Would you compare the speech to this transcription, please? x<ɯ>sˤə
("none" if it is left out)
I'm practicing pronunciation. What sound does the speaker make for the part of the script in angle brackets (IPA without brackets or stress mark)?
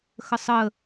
ə